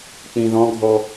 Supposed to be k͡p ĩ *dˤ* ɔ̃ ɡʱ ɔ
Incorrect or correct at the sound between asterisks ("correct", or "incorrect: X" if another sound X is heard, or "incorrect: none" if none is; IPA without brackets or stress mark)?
incorrect: ð